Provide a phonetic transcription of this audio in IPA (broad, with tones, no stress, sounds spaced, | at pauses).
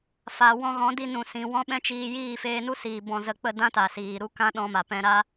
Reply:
f a˨ w ɔ̃˧ ɣ ɔ̃˨˦ d i˧ n ũ˨ s ĩ˨ w ɔ̃˦ ɓ ɛ̃˦ t͡ʃ iː˧ j iː˦˨ f eː˧ n u˦ s iː˨ b ɔ̃˨ z ə˨ k͡p ə˦˨ d ã˦ t a˨ s iː˨ ɾ u˦ k ã˦ ɗ ɔ̃˧ m a˨ p ɛ̃˧ ɾ a˦